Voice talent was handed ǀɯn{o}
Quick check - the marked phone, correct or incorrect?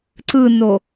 correct